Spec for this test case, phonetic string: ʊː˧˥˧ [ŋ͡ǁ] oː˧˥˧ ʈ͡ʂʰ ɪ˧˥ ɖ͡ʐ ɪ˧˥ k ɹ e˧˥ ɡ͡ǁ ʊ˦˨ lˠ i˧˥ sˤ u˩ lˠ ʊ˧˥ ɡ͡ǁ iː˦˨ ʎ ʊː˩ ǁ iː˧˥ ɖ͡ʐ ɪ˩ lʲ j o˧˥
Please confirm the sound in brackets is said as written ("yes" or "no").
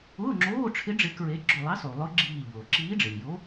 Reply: yes